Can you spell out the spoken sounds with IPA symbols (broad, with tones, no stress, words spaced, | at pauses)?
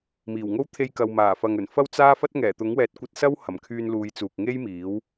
miː˨˩wŋo˥w t̪ʰe˧jkɐ˨wmaː˨˩fɐ˨ŋ ɵ˨˩nfɐ˥w t͡saː˥fɐ˥t̚ ŋɛː˨˩t̪ʊ˨˥ŋwɛː˨˥t̚kʷɐ˧t̚ sɐ˥whɐ˨˩mkʰyː˧nluː˨˧j t͡suː˨k̚ŋe˥jmiː˨˥w